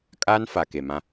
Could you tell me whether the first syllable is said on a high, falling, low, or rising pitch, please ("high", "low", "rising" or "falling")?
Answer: high